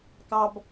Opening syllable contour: low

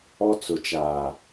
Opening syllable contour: high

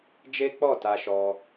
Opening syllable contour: high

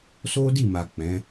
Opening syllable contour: high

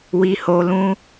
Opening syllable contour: low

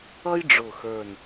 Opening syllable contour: high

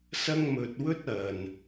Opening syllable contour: high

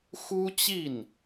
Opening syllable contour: high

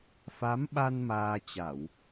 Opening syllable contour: rising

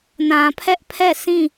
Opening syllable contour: low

